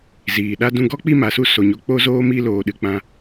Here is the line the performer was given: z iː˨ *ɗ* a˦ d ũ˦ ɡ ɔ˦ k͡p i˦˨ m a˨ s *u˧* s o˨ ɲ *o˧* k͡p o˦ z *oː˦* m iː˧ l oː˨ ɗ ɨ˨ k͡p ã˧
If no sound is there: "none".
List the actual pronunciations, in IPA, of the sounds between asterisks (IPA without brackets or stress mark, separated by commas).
ɗ, u˧, o˧, oː˦